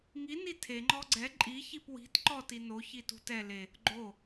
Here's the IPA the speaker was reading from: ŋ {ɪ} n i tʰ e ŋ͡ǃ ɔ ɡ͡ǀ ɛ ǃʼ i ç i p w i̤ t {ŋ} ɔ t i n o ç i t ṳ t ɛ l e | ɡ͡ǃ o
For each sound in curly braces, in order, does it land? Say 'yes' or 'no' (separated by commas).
no, no